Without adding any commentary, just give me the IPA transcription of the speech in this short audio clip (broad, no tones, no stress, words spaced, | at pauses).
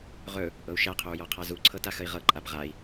ʁɵ | ʔɤu̯ʃæqʰɵu̯ jɔqʰazuǀʰɤ taxəi̯ʁɤǃʼab ʁai̯